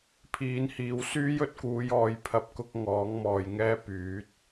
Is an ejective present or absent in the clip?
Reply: absent